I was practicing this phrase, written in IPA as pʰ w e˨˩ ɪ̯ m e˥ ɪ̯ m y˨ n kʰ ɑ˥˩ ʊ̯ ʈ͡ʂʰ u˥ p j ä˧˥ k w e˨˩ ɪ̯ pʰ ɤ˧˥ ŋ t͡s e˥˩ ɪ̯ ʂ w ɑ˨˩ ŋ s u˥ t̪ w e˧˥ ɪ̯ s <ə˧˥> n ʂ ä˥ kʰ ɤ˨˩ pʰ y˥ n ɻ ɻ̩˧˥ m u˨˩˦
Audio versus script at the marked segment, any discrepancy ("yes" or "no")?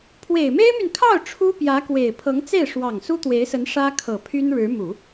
no